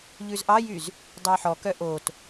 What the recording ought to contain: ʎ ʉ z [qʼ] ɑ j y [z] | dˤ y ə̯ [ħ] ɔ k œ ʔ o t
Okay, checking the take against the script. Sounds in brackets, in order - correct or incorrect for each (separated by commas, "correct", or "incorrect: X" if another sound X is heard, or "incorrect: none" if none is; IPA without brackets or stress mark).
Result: incorrect: ʔ, correct, correct